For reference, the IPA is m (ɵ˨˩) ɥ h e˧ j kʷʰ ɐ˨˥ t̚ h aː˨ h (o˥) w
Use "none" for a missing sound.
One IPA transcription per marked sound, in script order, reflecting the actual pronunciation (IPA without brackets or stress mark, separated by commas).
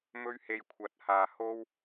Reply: ɵ˥, o˥